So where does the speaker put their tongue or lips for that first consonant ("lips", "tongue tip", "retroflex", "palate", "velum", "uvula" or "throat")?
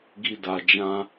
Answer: velum